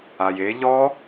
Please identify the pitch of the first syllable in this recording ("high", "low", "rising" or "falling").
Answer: low